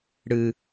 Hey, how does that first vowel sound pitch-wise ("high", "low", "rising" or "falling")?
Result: high